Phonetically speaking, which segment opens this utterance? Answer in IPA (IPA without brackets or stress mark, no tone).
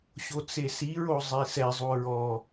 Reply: ɕ